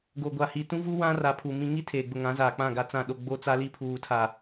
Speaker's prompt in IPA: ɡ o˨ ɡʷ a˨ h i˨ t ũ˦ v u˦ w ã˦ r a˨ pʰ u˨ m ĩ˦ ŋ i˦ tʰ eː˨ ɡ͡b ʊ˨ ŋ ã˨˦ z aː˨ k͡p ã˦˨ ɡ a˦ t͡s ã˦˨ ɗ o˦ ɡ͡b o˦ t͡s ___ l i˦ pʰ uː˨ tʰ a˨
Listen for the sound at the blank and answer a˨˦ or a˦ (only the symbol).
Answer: a˦